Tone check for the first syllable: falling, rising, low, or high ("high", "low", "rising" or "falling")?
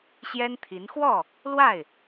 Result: high